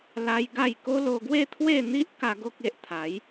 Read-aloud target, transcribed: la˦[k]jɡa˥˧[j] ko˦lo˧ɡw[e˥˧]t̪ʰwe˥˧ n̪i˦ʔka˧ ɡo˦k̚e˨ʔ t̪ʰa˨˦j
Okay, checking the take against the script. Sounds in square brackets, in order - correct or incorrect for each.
incorrect, correct, correct

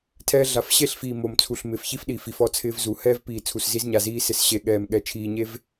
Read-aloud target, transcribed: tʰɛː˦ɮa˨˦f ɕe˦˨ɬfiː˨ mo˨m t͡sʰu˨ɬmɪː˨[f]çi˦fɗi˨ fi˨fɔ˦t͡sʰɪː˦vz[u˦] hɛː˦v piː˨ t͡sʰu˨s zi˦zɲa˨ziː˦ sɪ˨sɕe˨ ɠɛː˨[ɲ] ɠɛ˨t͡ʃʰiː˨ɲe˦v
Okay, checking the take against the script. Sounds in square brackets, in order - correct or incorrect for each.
correct, incorrect, incorrect

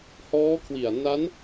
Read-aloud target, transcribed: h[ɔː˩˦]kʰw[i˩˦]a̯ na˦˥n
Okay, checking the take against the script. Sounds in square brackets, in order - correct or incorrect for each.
incorrect, incorrect

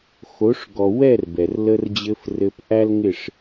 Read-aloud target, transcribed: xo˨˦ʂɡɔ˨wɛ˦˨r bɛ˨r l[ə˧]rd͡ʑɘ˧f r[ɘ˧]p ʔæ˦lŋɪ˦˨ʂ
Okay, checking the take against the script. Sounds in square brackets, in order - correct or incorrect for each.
correct, correct

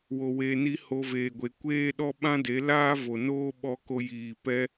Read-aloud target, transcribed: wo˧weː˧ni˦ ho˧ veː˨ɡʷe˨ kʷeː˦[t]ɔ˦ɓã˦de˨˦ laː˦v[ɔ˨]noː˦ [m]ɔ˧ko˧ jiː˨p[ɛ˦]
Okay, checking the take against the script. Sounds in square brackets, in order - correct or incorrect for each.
incorrect, incorrect, incorrect, incorrect

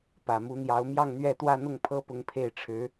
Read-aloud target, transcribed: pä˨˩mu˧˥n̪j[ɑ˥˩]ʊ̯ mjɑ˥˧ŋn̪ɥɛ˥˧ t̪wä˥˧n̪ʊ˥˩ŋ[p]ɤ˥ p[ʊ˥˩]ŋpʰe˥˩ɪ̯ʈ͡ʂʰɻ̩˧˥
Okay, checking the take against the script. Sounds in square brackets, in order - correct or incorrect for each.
incorrect, incorrect, incorrect

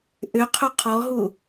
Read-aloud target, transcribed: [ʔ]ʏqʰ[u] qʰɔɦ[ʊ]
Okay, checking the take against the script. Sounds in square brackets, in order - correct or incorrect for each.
correct, incorrect, incorrect

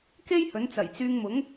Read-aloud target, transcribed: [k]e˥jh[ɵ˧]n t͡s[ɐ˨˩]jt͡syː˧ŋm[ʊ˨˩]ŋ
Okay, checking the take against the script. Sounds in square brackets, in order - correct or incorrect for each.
correct, incorrect, correct, incorrect

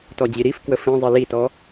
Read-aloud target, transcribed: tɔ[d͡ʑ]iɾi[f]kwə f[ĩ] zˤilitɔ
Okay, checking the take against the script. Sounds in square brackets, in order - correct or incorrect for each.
correct, correct, correct

